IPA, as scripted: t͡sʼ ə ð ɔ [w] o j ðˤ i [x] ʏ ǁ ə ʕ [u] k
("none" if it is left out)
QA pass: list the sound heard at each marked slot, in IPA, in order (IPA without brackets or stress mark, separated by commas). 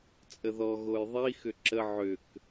ɣ, x, ʏ